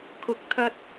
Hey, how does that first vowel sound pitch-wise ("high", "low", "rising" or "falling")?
low